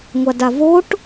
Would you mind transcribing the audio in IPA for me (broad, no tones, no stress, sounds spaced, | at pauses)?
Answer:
ŋʷ a d a v o ʈ